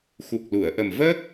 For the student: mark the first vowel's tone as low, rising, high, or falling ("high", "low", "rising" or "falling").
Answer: low